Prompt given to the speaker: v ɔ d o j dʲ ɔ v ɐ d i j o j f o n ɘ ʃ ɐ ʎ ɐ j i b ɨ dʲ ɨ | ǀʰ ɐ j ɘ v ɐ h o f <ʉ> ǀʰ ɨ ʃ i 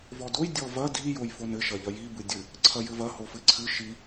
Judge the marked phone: incorrect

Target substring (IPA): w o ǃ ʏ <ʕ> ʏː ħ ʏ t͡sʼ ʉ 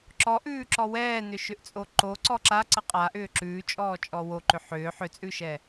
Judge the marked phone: incorrect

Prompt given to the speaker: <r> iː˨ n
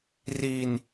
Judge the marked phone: correct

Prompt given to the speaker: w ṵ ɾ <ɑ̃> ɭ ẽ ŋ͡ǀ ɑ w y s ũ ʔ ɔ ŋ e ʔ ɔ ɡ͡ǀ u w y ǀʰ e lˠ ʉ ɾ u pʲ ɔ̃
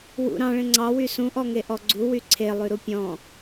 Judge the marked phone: correct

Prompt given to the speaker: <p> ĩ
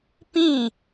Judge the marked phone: correct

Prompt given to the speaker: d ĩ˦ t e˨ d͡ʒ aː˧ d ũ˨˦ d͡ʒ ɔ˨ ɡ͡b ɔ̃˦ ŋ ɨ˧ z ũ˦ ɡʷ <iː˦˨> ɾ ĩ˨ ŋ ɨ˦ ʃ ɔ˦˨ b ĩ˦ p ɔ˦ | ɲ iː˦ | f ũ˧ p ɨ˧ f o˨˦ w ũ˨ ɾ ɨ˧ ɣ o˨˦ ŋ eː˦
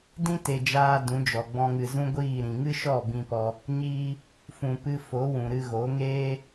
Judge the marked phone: correct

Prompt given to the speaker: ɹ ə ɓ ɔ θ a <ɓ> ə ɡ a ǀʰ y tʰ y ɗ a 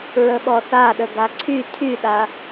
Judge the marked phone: incorrect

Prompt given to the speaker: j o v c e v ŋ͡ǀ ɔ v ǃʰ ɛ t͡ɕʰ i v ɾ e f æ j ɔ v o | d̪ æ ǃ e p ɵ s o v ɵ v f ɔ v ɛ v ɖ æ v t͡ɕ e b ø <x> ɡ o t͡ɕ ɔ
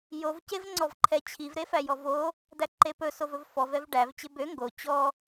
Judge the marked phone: incorrect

